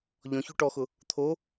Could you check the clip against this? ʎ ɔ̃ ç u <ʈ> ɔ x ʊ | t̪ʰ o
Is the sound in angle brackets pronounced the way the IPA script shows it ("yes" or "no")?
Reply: yes